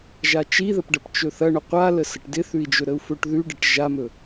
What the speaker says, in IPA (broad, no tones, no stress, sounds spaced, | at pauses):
ʒ a t͡ʃ i ð ə p ɖ ɐ p t͡ʃ ɵ θ ɐ ɳ ɵ qʷ a l ə s ə ʈ d ɪ θ ʉ i̯ d͡ʒ ɵ ɾ ə u̯ f ɵ ʈ ð ʉ ɖ ɪ ʈ ʒ a m ɵ